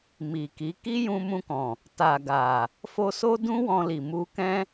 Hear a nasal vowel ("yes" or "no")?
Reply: yes